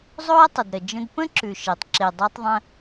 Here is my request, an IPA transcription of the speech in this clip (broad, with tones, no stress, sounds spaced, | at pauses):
zˤ o˥ ə̯ tˤ ə˩ d ɾ ə˩ d͡ʒ ə̃˧ d p ə̃˥ ǁ ʉ˩ ʃ e˩ tˤ ǁ e˩ dˤ o˧ tˤ ðˤ ə̃˧